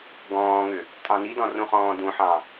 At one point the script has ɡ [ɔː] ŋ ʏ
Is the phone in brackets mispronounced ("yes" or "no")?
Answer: yes